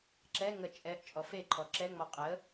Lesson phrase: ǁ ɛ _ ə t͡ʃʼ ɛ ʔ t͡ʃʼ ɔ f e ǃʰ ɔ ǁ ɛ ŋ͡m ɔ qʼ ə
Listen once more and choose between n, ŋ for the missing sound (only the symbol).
ŋ